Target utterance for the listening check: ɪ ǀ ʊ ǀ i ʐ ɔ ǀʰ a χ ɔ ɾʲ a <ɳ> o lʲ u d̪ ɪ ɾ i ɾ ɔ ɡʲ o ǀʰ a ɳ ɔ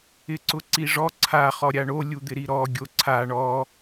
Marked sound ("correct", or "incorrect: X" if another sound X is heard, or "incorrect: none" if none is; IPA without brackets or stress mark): correct